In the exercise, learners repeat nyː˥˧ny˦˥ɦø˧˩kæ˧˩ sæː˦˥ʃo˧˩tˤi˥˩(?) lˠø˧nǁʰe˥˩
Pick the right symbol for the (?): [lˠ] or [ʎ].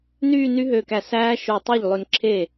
ʎ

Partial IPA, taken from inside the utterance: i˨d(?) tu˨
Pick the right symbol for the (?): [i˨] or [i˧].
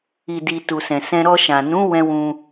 i˨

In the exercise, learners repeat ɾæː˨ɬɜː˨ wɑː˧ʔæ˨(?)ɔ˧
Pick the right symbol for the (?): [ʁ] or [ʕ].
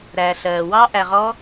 ʁ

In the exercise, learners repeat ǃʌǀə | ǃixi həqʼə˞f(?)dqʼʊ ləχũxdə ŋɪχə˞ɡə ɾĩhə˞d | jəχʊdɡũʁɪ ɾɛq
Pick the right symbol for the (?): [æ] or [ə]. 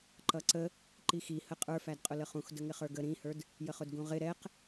æ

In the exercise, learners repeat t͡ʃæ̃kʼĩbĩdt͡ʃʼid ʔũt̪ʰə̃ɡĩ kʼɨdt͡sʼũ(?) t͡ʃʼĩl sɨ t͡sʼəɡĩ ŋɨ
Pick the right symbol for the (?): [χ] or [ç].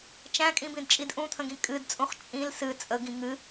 χ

